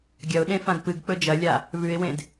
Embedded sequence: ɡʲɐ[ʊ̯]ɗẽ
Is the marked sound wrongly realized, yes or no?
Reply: no